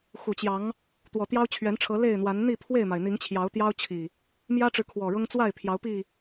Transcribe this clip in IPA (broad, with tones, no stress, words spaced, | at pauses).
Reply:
xu˨˩t͡ɕjɑ˨˦ŋ | t̪wɔ˨˩t̪jɑ˦ʊ̯t͡ɕʰɥɛ˨˦nʈ͡ʂʰɤ˨˦ le˥˨ɪ̯n̪wa˨˦n n̪i˥˨pʰwe˥˨ɪ̯ma˩ɪ̯ n̪i˨˦ŋt͡ɕʰjɑ˨˦ʊ̯t̪jɑ˦ʊ̯ t͡ɕʰi˨˩ | mjä˦ʈ͡ʂɻ̩˨ kʰwɔ˨˩ɻʊ˦ŋ t͡swa˥˨ɪ̯ pʰjɑ˨˦ʊ̯pi˥˨